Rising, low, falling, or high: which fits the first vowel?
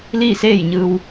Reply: falling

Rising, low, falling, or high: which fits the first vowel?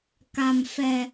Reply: low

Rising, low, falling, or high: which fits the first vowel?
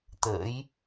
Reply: rising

